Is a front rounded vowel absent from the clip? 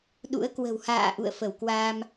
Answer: yes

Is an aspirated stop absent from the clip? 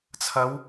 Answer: no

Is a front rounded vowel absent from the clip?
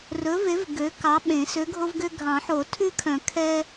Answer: no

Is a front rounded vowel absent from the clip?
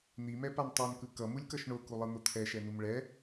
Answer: yes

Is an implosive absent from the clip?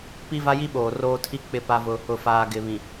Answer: no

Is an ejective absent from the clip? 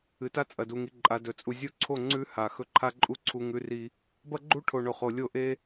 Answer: no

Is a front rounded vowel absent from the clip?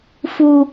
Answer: yes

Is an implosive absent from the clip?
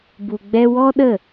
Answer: no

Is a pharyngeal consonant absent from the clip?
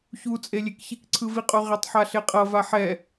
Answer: no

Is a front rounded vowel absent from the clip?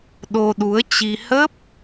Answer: yes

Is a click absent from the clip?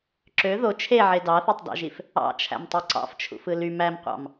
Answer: no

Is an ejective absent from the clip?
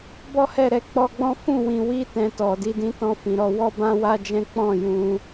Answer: yes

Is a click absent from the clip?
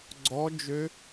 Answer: no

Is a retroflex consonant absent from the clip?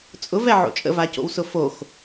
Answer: yes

